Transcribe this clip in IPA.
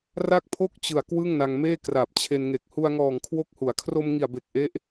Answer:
r a˥˩ k̚ pʰ o˥˩ k̚ t͡ɕ ɯ˨˩ a̯ k w ɯ˥˩ ŋ n a˧ ŋ m eː˥˩ k r a˨˩ p̚ t͡ɕʰ e˧ n ŋ e˨˩ k̚ h u˧ a̯ ŋ ɔː˨˩ ŋ kʰ w o˦˥ k̚ h u˩˦ a̯ kʰ r o˧ m ŋ i˨˩ a̯ b e˨˩ k̚ ʔ e˦˥ ʔ

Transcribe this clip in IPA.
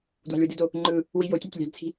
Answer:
d w ɑ̤ lʲ w ɯ d ɯ d o | ŋ͡ǃ ɯ | w i j o tʲ ɑ tʲ lʲ ɑ̤ d t͡sʰ i̤

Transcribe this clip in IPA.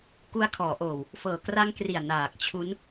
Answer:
k u˧ a̯ kʰ ɔː˩˦ ʔ oː˨˩ w | f ɤː˨˩ k r a˦˥ ŋ k r i˨˩ a̯ n aː˨˩ k̚ t͡ɕʰ u˦˥ n

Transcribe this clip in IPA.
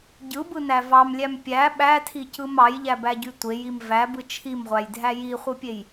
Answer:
ɟ ɯ b ɯ n æ v ɑ m lʲ æ m pʲ æ ɓ æ tʰ i c ɯ m ɑ j ʎ æ b æ ɟ y tʷ e j i m v æ b ɯ t͡ʃʰ i m ʁʷ æ j dʱ æ j i χʷ ɯ pʲ e j

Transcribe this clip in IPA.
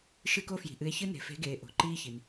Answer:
ʃ ɨ˧ k o˧ f j i̤˩ ʔ ɨ˩˧ e̯ ç ɨ˧ n e̤˩ f e̤˩˧ ɡ eː˩ ʔ o̤˩ ǃ iː˧ ç i˩ n

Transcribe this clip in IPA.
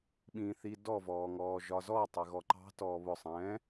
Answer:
ɓ ĩː θ i d ɔ v ɔː ŋ ɔː ʒ ɒ z ɔ tˤ ɪ ɣ ɔ ǃ ɑ̤ t ɔː β ʊ sˤ ɛ̃ː

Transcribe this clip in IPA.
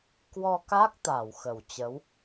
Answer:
k w ɔ˧ k a˦˥ k̚ t̪ a˧˩ w x ə˧˩ w t͡ɕ ə˨˦ w

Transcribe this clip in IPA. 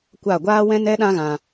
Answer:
kʷ a˦˨ ɡʷ aː˦ w ɛ̃˦ n ɛ˦ ɗ ã˦ ɣ ã˧

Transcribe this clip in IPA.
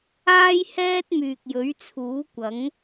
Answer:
aː˥ j h ɛː˥ t̚ m yː˨ k̚ j ɵ˨˥ ɥ t͡sʰ uː˨˥ kʷ ɐ˨˥ ŋ

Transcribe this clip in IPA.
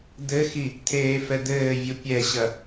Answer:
d̪ ɘ x i | t̪ʰ eː f ɛ d̪ ɘː vʲ u pʲ ɛ ɕ ɐ

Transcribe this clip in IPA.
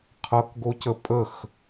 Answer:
qʰ ʌ k ɡ o c ə pʼ ə x

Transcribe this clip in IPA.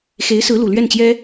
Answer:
x e˧˥ ɪ̯ s ɹ̩˧˥ l u˨˩ l ɥ ɛ˥˩ n t͡ɕ j ɛ˥

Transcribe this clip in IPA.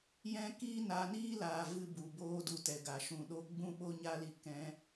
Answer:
j ɛ̃˦ k iː˦ n a˧ n iː˦ l aː˨ v ɨ˦ b u˨ b oː˦ d u˧ t ɛ˨ ɡ a˨ ʃ ũ˨ ɗ o˦ ɡ͡b ũ˦ ɓ o˦ ɲ a˦ l i˧ k ɛ̃˧

